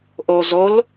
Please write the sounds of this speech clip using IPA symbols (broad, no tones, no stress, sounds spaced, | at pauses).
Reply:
ʔ o z o l